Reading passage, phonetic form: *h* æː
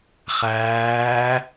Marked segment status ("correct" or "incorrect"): incorrect